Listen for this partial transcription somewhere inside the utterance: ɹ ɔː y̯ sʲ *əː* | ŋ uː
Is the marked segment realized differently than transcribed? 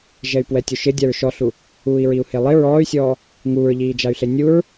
yes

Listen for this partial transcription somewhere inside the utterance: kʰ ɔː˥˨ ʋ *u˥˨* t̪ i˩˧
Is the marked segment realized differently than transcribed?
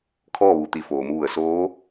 yes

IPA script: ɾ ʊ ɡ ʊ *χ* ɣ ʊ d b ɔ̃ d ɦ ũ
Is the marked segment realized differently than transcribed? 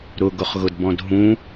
no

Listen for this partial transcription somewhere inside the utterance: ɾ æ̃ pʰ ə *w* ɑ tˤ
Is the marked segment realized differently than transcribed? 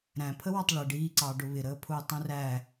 no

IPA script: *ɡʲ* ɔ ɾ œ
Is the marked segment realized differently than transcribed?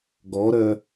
yes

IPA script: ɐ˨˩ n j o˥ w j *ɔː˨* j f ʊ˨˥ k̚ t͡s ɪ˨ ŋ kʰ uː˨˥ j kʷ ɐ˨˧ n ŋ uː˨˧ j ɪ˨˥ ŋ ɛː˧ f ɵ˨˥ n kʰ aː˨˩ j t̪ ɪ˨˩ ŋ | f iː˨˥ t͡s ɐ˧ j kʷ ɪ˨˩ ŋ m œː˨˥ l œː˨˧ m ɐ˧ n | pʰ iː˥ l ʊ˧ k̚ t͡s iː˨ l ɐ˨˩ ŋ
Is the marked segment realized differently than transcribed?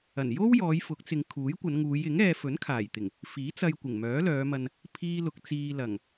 yes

